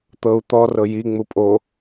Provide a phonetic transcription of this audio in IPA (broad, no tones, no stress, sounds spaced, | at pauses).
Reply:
t̪ ɤ u̯ t̪ ɔ r ɤ j i ŋ͡m u pʼ o